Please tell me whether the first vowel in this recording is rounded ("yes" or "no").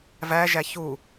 no